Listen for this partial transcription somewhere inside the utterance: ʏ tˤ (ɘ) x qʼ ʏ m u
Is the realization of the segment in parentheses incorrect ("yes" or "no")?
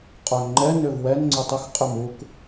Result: no